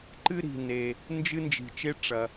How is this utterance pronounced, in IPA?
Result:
ǃɨ˥ ɾi̤˩ne˩ | nd͡ʒɨ˥nd͡ʒi̤˩t͡ʃe˥ ʈ͡ʂɐ˩

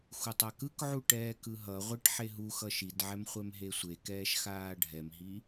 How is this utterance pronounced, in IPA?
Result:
xutˤakɯkʕu ʈɛːkɯɦʌʁʷeʈ ħeɦuxʌ ʃidʕɛm χʷɛmɦesʷekɛːʃ xaːɖʱɛmɦi

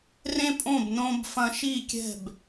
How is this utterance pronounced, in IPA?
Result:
rẽ˦pʼõ˦˨b nõ˧bfɐ̃˧ʃi˦˨ kʲɛ̤˦˨b

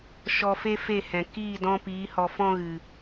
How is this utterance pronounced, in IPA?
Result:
ʃɔ˧fe˦fe˦˨hɛ̃˨ kiː˦˨dɔ̃˧piː˨˦ hɔ˧fɔ̃˦ɣɨ˨

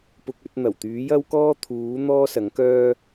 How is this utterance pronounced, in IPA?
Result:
pʊ˧k̚ɵ˨˥t̚n̪ɐ˨˩w t̪yː˨˥jɐ˥wkɔː˥t̪ʰuː˨˥ n̪ɔː˥ sɐ˨˥ŋkœː˥

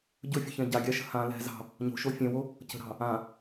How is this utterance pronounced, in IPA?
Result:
ɟɵfʲɵçɛ̃ ɟaɡʲaʃə̤ hã lɛ̤ zɑ̤ | ɲo̤ʃo fʲɛ̃wo | cə̤ɾɑ̤ | ã

